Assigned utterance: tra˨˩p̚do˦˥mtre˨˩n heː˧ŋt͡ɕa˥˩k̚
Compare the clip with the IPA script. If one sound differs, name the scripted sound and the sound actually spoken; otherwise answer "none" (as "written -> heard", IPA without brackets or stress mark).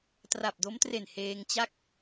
none